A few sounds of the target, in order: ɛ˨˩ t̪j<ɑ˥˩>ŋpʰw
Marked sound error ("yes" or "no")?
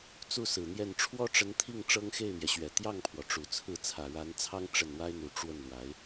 no